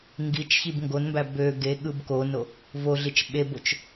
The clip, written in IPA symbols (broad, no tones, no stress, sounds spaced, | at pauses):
ŋ ɡ i t͡ʃ ç i b ŋ ɡ o n m b æ b ø ɡ e ɠ ɯ b k o n o | v o ɮ i t͡ʃ ɓ e b o t͡ʃ